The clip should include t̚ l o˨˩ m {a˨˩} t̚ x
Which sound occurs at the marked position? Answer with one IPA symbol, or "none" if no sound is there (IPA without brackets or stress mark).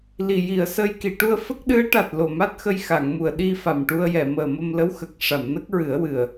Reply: a˦˥